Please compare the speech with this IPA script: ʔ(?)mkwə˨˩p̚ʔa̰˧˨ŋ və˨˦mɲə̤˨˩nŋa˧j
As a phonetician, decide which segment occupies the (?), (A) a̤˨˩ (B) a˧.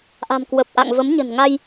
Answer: A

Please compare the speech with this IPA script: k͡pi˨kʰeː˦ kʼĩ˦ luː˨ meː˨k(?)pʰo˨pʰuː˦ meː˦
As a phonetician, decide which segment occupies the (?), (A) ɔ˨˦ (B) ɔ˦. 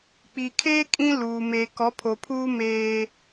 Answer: A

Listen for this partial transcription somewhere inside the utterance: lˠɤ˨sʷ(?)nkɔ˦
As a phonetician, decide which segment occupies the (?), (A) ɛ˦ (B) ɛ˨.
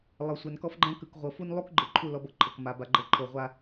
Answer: B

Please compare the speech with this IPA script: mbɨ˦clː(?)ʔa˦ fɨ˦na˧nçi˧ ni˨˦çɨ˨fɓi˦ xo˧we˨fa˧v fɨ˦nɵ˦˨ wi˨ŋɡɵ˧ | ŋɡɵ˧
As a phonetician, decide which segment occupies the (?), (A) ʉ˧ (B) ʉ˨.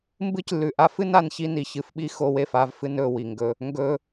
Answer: B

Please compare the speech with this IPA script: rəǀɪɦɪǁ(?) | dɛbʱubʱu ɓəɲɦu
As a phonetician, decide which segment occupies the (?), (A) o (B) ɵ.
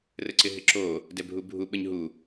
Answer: A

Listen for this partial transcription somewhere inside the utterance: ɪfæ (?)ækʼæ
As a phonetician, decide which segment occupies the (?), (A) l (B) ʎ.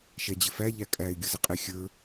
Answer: B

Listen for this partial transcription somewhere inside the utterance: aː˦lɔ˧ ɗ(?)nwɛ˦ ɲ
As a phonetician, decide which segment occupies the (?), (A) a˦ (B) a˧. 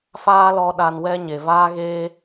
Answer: B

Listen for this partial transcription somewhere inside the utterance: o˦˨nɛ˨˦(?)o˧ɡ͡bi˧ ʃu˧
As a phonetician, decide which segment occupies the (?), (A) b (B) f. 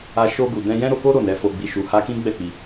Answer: B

